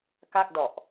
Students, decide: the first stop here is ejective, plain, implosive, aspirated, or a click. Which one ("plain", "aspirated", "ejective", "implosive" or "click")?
plain